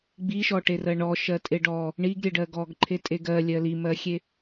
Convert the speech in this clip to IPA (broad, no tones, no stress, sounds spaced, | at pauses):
ɡ͡b i ʃ ɔ ʈ e r ɜ ɳ ɔ ʃ ɜ tʼ e ɖ ɔ | ɳ i ɡ ɾʲ e ɖ ɜ ɡ ɔ ɡ ǃʰ e tʼ e ɡ ɜ lʲ ɜ l i m ɜ xʲ e